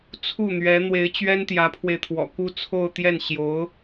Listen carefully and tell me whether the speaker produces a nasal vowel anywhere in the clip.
no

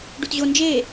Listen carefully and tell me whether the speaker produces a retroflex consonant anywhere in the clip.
yes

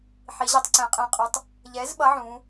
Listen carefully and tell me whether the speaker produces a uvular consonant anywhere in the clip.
yes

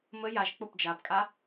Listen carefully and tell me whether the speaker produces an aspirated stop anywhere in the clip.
no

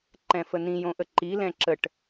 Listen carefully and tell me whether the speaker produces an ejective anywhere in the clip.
no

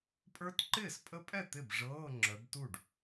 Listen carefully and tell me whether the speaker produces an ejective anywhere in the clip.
yes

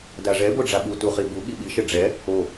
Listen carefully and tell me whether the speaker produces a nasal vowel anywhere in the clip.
no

